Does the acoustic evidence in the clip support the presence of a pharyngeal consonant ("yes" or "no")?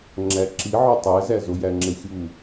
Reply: yes